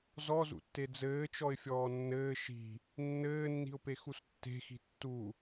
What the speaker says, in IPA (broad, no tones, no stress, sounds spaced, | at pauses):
z ɔ z ṵ tː e d͡z ɘː t͡ʃ ɔ ɪ̯ fʲ ɔː nː ɘː ʃ i̤ | nː ɘː nː i̤ ʊ̯ p e x u s tː e̤ x i̤ tː u